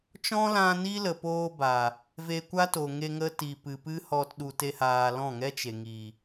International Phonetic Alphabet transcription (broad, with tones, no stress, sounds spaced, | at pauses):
t͡ʃ ɔ̃˦ l ã˧ n i˦ l ə˨ p oː˧ b a˨ | v e˧ kʷ a˦ t o˨ ŋ e˧ ŋ ə˦ t i˨ p ɨ˨ p ɨ˦ h ɔ˧ t ɗ u˧ t e˦ h aː˧ l ɔ̃˦˨ ŋ ɛ˦ t͡ʃ e˨ ŋ i˨